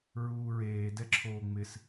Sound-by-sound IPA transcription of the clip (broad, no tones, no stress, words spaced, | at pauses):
ɹuːɹeː dɛǁʰoːŋ͡mɪs